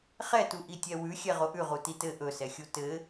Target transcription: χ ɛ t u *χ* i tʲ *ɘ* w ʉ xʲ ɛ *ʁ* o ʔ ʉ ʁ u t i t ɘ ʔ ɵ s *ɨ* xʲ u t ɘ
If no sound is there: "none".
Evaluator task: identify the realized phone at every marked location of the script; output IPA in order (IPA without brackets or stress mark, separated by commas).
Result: ʔ, ɛ, ʁ, ɛ